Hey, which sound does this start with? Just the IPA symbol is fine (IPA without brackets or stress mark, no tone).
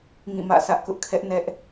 ŋ